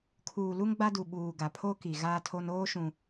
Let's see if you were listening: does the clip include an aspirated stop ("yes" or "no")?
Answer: yes